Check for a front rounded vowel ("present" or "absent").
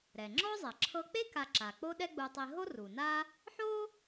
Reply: absent